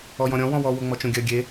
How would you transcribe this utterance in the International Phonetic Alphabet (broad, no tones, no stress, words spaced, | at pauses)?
ɔjɔ̃ɾʲɔ̃ wɔ̃wɔ woŋ͡mɔt͡ʃõɡʲɜ ɡʲe